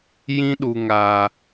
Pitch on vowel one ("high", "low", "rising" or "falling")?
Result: high